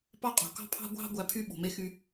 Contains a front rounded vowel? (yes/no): yes